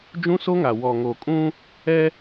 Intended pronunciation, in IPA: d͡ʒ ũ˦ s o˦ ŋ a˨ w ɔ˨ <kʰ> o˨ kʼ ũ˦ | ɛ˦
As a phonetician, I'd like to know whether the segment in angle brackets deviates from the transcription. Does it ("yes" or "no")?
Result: yes